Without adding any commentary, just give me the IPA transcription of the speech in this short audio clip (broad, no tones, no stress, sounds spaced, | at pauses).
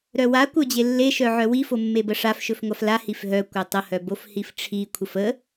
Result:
ɾ œ w a kʷ œ d͡ʑ e lː e ʃ œ ʕ œ w i f o mː e b ə ʂ a f ʃ ɵ f ŋʷ a f l a h i f ɦ œ kʷ œ tˤ ə h œ b o f h i f ʈ͡ʂʰ i kʷʰ ə f ə